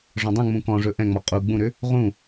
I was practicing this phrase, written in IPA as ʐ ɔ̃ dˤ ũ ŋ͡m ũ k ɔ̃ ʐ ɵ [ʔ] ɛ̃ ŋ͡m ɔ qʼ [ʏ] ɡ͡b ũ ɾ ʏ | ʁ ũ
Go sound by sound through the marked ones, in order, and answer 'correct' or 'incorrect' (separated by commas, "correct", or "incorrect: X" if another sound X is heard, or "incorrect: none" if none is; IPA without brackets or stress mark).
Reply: correct, incorrect: u